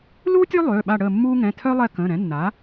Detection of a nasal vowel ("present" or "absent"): present